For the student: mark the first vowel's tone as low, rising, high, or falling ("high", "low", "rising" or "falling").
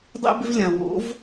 high